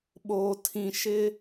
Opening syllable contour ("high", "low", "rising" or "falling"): low